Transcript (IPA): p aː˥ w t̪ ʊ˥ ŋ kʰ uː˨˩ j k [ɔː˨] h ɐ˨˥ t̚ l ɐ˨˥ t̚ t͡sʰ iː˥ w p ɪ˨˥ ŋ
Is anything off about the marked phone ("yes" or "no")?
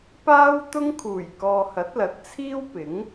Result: no